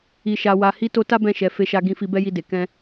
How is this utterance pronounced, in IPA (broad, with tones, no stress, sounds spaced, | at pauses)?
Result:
i˨ ʃ a˨ w a˨ h i˨˦ t o˧ t a˦ b ɛ̃˦˨ ʃ ɛ˨ f e˨˦ ʃ a˧ ɡ ĩ˧ f i˧ b ɛ˦ j i˧ d e˨ k ɛ̃˧